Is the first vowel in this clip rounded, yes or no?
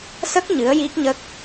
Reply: no